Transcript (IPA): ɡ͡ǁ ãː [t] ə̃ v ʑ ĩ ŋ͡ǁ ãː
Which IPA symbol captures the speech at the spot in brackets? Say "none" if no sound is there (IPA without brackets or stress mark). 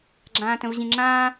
t